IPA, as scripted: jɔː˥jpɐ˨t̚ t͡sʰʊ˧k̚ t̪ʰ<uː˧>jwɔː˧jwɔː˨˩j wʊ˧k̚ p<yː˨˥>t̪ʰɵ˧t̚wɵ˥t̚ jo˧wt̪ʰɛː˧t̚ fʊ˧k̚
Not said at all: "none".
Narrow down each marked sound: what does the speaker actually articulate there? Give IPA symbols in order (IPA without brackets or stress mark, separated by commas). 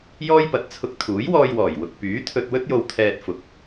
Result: uː˨˥, yː˨˥